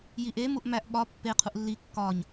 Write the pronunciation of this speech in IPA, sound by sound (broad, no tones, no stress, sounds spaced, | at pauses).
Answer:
j i ʔ e m u ʔ m æ ʔ ɓ ɒ pː e qʰ u ʔ lː i kː ɒ ɲ